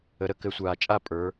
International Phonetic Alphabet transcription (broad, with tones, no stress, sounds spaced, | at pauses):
ə˨˦ ɾ ə˥˨ k ɘ˨˦ sʷ aː˨ t͡ʃʼ a˥˨ pʼ ə˞˨˦